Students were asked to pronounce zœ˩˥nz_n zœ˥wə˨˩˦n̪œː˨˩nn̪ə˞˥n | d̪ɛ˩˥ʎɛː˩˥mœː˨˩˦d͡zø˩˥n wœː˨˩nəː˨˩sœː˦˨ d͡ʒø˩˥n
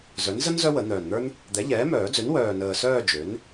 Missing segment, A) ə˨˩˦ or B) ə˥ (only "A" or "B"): B